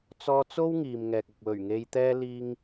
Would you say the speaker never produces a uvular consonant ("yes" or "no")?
yes